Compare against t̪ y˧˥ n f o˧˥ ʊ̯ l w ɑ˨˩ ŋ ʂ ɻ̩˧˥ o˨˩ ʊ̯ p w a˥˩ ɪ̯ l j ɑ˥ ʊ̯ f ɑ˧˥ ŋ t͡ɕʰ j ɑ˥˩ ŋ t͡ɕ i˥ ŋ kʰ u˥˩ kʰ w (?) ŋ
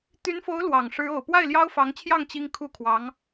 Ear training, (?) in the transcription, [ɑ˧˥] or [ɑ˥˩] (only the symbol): ɑ˧˥